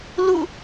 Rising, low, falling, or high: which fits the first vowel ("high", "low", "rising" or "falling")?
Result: falling